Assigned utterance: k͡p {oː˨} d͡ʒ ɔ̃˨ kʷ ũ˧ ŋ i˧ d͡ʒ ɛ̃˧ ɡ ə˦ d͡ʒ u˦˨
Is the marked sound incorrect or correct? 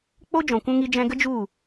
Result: incorrect